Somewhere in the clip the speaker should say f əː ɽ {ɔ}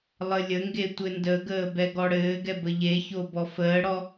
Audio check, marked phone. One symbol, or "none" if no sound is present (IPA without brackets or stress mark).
ɔ